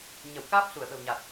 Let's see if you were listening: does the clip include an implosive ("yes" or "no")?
yes